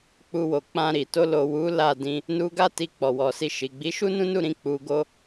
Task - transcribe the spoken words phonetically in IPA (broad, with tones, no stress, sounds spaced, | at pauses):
k͡p u˧ w o˨ k͡p ã˧ ɾ i˨ t o˧ l o˨ w u˨˦ l a˦˨ d ĩ˧ | n u˧ ɡ a˦ t i˧ k͡p ɔ˨ w ɔ˨ s i˧ ʃ i˨ ɡ͡b i˨˦ ʃ u˦ n ũ˦ n u˦˨ ɾ ĩ˧ k͡p u˧ ɡ o˦